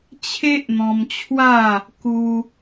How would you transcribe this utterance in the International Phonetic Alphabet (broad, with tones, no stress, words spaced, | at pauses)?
t͡ɕʰe˦ʔn̪ɔ̃˧mt͡ɕʰwa˥˧ | ku˧